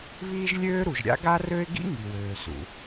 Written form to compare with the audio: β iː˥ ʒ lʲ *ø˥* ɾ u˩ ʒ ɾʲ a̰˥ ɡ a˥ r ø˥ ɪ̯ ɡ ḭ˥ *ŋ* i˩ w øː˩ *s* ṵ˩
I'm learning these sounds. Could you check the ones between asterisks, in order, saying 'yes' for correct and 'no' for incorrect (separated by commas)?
no, yes, yes